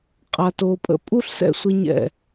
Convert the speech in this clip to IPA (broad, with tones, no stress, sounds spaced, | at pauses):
qʼ a˧ t o˧ pʼ ə̰˦ pʼ u˦ ɬ s ɛ̰˦ sʷ ɪ˧ ɲ ɛ̰˦˨